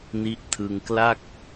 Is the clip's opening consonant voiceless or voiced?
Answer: voiced